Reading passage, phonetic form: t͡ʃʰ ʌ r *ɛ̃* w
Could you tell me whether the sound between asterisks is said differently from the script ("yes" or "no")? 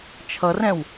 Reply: no